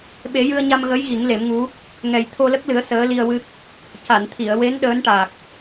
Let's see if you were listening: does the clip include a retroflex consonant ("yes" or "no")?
yes